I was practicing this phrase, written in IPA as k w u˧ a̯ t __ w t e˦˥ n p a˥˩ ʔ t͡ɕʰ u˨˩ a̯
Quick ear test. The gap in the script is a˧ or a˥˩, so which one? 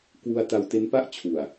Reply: a˧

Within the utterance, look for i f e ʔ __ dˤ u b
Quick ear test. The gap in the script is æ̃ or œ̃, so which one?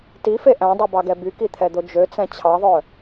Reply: æ̃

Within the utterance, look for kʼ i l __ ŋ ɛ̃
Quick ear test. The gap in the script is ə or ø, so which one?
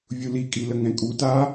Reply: ə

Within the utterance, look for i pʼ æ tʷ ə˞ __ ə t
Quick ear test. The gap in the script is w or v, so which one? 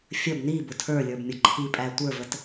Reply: v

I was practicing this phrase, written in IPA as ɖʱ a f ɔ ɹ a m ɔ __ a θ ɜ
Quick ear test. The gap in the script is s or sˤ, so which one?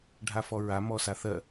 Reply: s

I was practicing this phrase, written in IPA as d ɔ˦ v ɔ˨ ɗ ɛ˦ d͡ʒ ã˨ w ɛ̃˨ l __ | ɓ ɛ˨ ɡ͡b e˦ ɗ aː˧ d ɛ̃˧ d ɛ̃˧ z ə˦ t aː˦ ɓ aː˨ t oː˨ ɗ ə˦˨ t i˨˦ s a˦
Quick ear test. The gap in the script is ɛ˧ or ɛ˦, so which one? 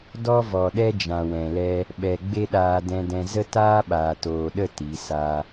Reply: ɛ˦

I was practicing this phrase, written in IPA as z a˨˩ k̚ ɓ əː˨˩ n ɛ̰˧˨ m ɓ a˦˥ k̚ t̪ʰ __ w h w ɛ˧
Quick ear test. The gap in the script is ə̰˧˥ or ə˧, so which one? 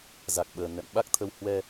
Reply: ə˧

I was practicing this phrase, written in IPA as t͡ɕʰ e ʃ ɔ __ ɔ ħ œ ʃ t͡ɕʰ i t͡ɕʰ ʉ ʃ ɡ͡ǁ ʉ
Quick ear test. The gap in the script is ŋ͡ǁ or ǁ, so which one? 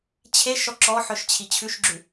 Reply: ǁ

